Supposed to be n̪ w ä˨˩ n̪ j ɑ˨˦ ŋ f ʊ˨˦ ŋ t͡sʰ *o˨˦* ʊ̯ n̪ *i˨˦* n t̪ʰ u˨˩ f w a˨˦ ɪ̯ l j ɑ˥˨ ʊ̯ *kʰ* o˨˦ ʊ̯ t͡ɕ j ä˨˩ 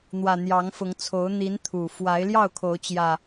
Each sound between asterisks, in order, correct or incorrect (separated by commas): correct, correct, correct